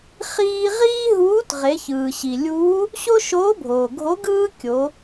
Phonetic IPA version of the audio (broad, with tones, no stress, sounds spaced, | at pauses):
χ iː˧ ʁ iː˥ ɦ uː˧˥ t ʁ e˩˧ ç ɯː˩ ɕ i˩ lʲ uː˧˥ | ɕ o˥ ʃ oː˧˥ bʱ oː˩ ɡʱ o˧˥ ɡ ɯː˥ kʲ o˩˧